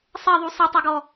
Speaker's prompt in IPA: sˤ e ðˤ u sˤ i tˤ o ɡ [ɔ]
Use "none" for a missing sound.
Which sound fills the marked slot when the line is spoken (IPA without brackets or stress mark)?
ɔ